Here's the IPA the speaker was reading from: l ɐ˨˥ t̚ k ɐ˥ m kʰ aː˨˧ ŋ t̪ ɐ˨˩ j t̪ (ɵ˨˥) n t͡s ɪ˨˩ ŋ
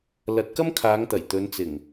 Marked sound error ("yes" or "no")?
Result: yes